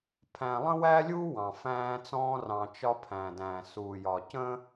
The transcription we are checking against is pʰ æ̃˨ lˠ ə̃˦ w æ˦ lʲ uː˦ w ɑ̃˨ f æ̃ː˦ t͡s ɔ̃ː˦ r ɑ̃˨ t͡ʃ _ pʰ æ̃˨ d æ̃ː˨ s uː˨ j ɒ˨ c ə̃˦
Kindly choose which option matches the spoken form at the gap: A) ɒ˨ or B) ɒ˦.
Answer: B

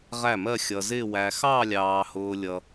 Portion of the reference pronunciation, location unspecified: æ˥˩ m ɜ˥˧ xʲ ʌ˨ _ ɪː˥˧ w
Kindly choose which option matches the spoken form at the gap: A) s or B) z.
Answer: B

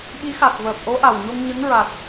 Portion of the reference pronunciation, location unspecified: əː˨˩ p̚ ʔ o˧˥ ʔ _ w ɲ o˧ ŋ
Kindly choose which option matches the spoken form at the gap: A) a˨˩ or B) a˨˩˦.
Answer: A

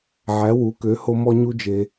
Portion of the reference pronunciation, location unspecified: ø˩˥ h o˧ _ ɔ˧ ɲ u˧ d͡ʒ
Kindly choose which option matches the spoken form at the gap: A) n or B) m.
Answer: B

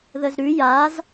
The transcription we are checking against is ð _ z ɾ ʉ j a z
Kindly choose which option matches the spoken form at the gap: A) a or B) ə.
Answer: B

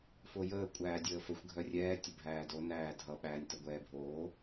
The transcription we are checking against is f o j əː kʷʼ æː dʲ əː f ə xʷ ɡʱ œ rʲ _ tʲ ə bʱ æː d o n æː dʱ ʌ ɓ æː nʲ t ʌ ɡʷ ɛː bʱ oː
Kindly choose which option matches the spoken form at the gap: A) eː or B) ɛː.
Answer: B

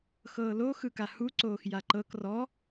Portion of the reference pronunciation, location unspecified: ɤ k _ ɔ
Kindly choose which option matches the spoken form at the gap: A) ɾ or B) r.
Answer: B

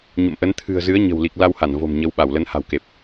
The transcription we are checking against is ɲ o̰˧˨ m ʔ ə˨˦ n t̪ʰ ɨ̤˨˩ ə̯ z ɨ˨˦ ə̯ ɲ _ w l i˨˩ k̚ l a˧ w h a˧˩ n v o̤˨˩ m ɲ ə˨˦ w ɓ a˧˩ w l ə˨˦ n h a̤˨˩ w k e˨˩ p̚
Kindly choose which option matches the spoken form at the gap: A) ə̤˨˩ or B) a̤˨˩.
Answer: A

